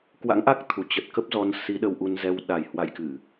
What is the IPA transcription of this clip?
k w a̰˧˥ ŋ ʔ a˦˥ k̚ t̪ʰ u˨˩ t͡ɕ ə˨˩ t̚ k ə˦˥ p̚ z ɔ˨˦ n s i˨˦ ɗ ə˧ w ʔ u˧ n z ɛ˧ w ɗ a˨˩ j h w a̰˧˨ j k ɨ˧˩˨

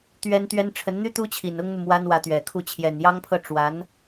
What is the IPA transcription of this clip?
t̪ ɥ ɛ˥ n t̪ ɥ ɛ˥ n ʈ͡ʂʰ ə˧˥ n n̪ y˥ t̪ u˥ t͡ɕʰ i˨˩ n ʊ˥ ŋ n̪ u˨ m w a˥ n w ä˧˥ t̪ ɥ ɛ˨˩ kʰ u˥˩ t͡ɕʰ j ɛ˨˩ n j ɑ˥ ŋ pʰ ɤ˥˩ ʈ͡ʂ w a˧˥ n

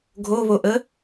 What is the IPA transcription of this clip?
ɡʱ o β o ʔ ə

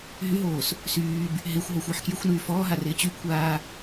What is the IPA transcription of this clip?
ɦ y ɦ oː s | s yː b | ɦ ɪː xʷ ɦ o xʷ ɪː ħ k j y xʷ n yː f ɔː ɦ a r ɪː t͡ɕ y kʷʰ aː

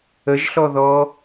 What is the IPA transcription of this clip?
ə ʒ ɬ ɔ ð ɔ

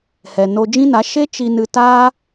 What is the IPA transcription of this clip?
h ɛ˨ n o˧ d͡ʒ ĩ˦ n a˨˦ ʃ e˦ t͡ʃ i˧ n ɨ˧ t aː˦

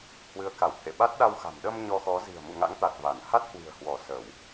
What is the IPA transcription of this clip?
h w ɨ˨˦ ə̯ k a˧˩ w t̪ʰ ḛ˧˨ ɓ a˦˥ t̚ ɗ a˧ w x a̤˨˩ m ɗ ə˧ m ɲ ɔ˧ x ɔ˨˦ z i̤˨˩ ə̯ m ṵ˧˨ ŋ a̰˧˥ ŋ t̪ a˨˩ t̚ v a˧˩ n h a˦˥ t̚ h w i̤˨˩ ə̯ h w ɔ˧˩ s ə˧˩˨ w

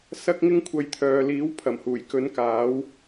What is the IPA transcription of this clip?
s ɐ˥ k̚ ŋ ɪ˥ ŋ kʷʰ ɐ˧ j t̪ʰ œː˨ l iː˨˥ w pʰ ɐ˨˩ m h uː˨˩ j k ɵ˨˧ n k aː˨˥ w

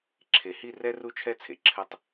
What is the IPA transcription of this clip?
ǁʰ e˨ h i˦˨ r ɛ˦ r u˦ t͡ʃʰ ɛ˦ t͡sʰ ḛ˨ ǁʰ ɘ˦˨ tˤ

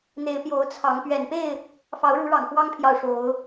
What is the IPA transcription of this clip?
n̪ e˨˦ ɪ̯ p j o˨˦ ʊ̯ t͡sʰ ɑ˨˦ ŋ p ɥ ɛ˨˩ n p e˥˨ ɪ̯ | f ɑ˨˦ ʊ̯ ɻ u˨˦ ɻ ɑ˨˩ ŋ f w ɑ˦ ŋ pʰ j ɑ˨ ʊ̯ ʂ o˨˦ ʊ̯

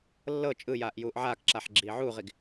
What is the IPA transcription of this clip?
lː ɤ t͡ʃʼ ɯ j aː ʔ j uː ʔ ʕ aː k ǁ a ħ ɡ͡ǁ iː ʕ uː ʁ i ɡ

